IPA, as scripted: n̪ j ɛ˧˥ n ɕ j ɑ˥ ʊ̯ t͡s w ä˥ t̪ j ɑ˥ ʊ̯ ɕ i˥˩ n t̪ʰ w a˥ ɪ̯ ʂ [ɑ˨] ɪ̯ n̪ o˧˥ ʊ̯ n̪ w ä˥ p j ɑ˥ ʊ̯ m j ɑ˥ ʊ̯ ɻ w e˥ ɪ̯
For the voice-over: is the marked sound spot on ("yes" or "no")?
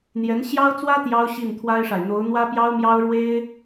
no